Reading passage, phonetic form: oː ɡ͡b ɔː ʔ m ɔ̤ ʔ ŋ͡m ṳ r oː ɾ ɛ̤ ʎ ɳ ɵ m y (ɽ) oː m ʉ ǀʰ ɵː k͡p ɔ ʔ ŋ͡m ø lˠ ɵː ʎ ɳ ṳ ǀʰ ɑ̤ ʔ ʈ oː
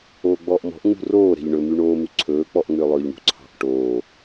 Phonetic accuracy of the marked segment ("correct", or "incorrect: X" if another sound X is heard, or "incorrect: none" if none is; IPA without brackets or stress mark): incorrect: ɳ